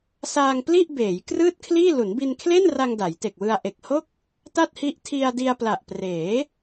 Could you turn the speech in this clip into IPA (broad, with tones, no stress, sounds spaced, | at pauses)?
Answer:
s aː˧ ŋ p l i˥˩ ʔ b eː˩˦ j k r ɯː˥˩ t̚ kʰ l iː˥˩ l u˩˦ n b i˧ n kʰ l e˥˩ n r a˧ ŋ d a˩˦ j t e˨˩ k̚ w ɯ˧ a̯ ʔ e˨˩ k̚ h o˥˩ k̚ | t a˥˩ t̚ h i˦˥ ʔ tʰ i˧ a̯ d i˧ a̯ p l a˨˩ ʔ p r eː˩˦